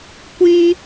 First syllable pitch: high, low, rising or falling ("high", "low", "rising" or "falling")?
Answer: high